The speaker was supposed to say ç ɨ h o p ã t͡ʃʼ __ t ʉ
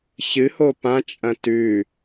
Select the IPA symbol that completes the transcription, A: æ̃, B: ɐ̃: B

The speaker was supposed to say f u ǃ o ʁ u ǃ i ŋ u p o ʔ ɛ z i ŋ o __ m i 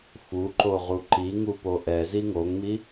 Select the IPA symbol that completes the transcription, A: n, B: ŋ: B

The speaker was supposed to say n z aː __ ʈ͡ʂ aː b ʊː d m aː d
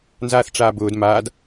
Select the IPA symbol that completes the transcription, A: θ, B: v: A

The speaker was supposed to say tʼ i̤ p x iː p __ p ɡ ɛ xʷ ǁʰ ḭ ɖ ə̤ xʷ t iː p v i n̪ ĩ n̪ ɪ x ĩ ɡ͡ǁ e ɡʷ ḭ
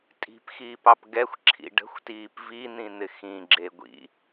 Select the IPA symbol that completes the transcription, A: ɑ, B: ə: A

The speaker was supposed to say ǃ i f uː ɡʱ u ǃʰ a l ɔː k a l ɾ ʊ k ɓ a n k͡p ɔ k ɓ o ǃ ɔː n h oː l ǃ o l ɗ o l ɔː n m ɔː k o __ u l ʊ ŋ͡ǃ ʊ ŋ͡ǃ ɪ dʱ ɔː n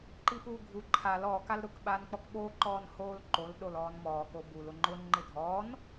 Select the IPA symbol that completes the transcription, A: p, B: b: B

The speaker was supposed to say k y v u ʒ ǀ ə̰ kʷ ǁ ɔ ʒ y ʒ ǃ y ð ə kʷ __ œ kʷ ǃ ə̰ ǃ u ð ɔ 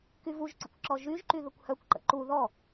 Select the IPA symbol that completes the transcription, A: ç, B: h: B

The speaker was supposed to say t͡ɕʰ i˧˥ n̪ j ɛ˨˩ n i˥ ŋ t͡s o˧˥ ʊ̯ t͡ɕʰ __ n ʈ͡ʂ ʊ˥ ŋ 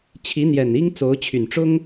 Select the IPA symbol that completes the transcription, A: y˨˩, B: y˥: A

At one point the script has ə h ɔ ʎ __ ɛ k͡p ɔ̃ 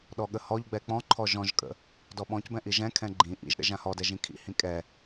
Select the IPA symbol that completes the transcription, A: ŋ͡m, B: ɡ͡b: B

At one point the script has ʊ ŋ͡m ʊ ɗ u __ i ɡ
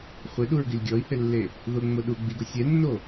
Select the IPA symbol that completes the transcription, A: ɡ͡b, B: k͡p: A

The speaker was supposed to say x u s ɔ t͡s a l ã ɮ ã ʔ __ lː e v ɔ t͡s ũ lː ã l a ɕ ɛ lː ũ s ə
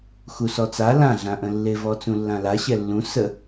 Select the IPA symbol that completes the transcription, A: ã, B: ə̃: B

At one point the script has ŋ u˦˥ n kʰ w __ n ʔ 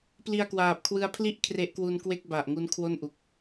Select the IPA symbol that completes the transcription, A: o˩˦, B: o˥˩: B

